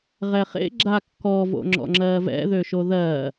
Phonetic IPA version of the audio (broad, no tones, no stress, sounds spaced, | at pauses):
ʁ ɛ χ ḛ ɡ͡ǁ a kː ɔ v o̰ ŋ͡ǁ ɔ̰ ŋ͡ǁ ɜː v ɛ̰ ð ø ʃ o ð ɜː